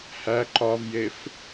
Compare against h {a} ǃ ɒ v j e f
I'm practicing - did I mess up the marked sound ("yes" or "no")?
yes